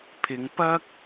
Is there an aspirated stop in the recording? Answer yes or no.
yes